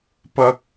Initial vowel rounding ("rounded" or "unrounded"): unrounded